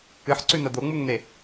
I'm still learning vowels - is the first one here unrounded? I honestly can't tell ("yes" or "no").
yes